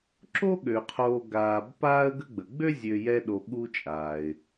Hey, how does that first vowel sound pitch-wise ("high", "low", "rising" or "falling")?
high